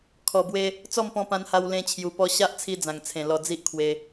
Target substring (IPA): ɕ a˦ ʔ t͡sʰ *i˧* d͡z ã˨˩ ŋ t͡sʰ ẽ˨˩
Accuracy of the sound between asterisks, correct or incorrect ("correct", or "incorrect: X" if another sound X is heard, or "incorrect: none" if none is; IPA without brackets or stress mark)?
correct